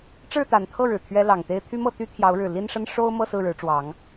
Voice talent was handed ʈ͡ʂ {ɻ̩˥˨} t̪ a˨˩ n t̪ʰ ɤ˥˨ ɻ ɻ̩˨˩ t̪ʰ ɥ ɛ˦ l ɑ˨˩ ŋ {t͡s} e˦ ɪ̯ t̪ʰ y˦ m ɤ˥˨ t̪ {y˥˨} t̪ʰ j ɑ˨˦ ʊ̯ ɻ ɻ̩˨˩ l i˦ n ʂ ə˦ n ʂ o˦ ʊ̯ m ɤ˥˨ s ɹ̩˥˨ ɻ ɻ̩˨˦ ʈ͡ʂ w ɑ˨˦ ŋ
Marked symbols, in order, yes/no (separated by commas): yes, no, no